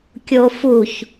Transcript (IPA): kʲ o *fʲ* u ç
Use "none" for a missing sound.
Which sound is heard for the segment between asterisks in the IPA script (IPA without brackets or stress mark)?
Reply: f